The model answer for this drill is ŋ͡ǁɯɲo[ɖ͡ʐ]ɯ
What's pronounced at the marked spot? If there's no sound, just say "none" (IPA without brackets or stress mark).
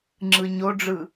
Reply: ɖ͡ʐ